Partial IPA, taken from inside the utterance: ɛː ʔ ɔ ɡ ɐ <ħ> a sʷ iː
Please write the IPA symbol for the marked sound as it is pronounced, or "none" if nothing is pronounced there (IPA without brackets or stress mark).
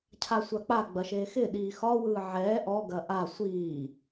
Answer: ʔ